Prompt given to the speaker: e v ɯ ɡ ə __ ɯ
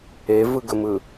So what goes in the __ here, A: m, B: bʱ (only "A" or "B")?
A